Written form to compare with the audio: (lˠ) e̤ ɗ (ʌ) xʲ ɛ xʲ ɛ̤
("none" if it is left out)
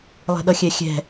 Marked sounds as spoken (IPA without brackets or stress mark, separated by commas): lˠ, ʌ